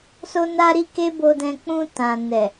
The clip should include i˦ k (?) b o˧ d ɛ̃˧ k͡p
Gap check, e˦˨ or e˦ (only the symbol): e˦